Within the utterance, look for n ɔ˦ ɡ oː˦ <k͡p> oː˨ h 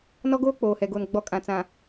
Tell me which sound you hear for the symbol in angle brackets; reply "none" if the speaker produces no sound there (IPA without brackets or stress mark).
k͡p